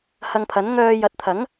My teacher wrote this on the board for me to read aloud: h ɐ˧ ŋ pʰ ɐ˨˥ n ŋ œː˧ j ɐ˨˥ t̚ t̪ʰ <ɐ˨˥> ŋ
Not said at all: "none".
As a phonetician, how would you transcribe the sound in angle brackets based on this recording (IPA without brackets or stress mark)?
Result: ɐ˨˥